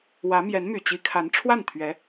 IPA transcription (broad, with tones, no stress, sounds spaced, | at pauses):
w ä˧˥ m j ɛ˧˥ n m y˨˩ t͡ɕ i˧˥ kʰ a˧˥ n ʈ͡ʂʰ w a˥˩ n t̪ʰ ɥ ɛ˧˥